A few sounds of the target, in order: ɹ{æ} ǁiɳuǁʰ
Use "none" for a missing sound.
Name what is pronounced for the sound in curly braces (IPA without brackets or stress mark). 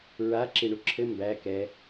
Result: a